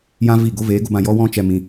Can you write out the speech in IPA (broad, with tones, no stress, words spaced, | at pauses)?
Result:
jã˦vi˦˨ ɡo˦veː˨˦ɡo˧bã˧ jɔ˦wɔ̃˦t͡ʃɛ˧ mĩ˧